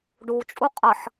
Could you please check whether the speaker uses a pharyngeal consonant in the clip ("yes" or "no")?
yes